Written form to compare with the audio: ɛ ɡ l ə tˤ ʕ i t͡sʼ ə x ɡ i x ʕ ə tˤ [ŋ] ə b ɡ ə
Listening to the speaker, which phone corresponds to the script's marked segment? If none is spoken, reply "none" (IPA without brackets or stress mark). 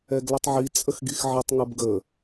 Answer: ŋ